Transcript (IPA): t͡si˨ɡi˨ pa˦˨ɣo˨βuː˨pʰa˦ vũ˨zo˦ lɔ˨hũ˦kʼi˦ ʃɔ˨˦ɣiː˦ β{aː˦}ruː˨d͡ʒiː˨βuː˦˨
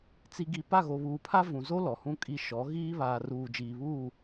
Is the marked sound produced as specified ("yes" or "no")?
no